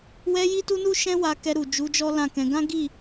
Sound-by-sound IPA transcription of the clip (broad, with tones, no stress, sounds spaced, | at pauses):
w ɛ˧ j i˦ t u˦ n u˦ ʃ ɛ̃˦ w a˧ k ɛ˧ ɾ u˨ d͡ʒ u˨˦ d͡ʒ ɔ˦ l ã˦˨ k ɛ̃˧ ɡ ã˦ ɡ i˦˨